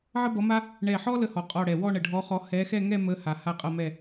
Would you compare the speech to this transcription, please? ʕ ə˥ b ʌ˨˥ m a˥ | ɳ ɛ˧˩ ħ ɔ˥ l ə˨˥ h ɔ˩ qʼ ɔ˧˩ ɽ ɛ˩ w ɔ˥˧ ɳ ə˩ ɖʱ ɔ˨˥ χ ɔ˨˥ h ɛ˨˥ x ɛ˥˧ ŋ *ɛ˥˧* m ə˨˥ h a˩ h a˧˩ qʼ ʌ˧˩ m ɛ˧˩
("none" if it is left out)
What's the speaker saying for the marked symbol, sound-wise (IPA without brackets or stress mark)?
ɛ˥˧